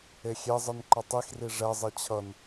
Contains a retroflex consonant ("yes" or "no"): yes